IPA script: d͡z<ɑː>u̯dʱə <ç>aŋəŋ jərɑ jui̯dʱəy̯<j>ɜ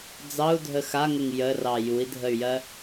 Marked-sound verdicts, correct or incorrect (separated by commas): incorrect, incorrect, correct